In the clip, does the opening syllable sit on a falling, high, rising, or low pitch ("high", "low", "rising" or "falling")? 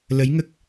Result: rising